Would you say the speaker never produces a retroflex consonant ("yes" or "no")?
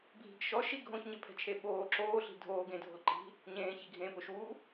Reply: yes